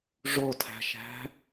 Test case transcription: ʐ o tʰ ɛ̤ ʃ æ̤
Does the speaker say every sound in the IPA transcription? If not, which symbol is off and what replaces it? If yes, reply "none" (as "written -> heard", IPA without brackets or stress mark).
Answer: ɛ̤ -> æ̤